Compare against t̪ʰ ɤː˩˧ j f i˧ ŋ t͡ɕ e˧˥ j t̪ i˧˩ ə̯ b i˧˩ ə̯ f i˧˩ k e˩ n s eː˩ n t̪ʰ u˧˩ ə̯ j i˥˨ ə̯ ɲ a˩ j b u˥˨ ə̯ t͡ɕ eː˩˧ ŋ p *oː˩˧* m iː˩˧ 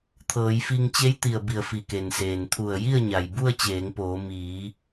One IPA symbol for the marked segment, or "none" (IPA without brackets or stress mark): oː˩˧